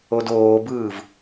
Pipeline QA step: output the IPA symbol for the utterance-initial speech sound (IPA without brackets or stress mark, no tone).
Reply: o